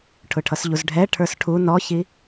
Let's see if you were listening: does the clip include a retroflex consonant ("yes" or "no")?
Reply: yes